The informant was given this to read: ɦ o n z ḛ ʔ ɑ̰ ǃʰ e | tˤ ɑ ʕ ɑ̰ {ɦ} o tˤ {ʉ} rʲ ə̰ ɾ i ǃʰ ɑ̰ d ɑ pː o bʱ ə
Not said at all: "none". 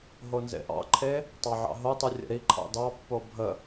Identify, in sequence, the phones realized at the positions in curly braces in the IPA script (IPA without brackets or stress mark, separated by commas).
ɦ, ʉ